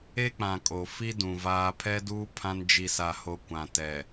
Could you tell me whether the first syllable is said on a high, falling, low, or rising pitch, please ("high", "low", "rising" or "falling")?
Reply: high